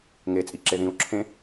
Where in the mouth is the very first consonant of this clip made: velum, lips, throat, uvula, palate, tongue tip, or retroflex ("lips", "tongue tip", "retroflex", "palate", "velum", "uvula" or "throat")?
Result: velum